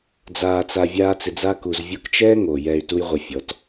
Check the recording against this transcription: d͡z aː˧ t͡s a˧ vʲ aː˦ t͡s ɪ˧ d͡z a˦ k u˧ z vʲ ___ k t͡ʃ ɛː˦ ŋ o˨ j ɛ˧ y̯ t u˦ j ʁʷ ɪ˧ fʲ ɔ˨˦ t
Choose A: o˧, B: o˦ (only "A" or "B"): A